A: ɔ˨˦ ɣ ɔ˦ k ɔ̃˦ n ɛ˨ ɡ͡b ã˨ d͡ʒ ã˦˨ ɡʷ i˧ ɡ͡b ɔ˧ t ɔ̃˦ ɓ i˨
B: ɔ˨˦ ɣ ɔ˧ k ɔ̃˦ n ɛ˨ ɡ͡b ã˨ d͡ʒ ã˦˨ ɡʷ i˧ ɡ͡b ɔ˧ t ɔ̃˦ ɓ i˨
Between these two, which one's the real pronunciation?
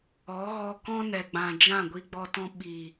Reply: B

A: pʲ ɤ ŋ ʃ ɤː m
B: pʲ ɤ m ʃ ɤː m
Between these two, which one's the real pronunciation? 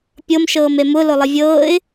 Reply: B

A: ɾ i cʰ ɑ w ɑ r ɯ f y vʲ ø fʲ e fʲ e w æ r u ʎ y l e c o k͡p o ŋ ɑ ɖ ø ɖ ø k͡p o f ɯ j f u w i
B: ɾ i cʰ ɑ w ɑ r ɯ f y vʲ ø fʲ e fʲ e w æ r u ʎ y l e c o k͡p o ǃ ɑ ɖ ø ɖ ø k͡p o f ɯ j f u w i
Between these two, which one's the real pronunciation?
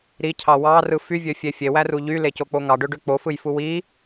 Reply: A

